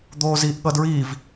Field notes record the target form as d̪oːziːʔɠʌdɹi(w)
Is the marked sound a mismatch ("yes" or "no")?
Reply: yes